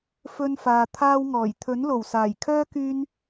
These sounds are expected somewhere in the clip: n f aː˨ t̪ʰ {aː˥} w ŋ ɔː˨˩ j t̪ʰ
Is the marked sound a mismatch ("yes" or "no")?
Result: no